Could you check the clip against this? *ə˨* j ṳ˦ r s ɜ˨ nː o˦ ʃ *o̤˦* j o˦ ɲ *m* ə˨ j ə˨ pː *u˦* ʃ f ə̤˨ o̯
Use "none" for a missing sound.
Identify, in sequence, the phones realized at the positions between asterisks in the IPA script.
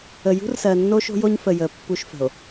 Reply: ə˨, o̤˦, f, u˦

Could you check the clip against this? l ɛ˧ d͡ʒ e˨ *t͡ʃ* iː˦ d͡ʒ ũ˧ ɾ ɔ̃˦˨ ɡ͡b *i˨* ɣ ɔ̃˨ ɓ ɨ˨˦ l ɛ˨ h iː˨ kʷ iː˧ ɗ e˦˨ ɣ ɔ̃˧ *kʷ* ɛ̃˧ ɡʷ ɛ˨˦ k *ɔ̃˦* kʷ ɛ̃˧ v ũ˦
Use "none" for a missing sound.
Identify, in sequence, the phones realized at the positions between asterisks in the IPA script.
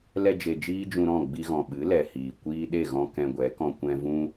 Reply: d͡ʒ, i˧, k, ɔ̃˧

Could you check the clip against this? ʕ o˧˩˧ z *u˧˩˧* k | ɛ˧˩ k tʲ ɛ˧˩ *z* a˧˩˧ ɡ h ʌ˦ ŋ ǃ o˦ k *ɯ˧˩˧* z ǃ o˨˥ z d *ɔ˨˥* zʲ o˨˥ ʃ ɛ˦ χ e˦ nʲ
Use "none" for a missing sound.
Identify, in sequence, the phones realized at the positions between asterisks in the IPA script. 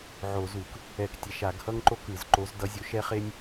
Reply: u˧˩˧, ʃ, ɯ˧˩˧, ʌ˨˥

